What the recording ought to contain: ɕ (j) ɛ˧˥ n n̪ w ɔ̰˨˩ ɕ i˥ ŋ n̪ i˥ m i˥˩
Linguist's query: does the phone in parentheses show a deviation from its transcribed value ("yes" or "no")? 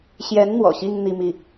no